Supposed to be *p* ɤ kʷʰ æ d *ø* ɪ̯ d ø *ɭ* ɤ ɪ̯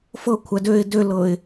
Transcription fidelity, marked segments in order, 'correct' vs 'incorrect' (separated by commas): incorrect, correct, incorrect